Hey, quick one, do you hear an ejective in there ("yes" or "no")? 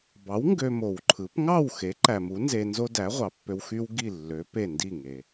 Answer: no